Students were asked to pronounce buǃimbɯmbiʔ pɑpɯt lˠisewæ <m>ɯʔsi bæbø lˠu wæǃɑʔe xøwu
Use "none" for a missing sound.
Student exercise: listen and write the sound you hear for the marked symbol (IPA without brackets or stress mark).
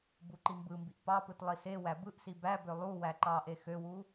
b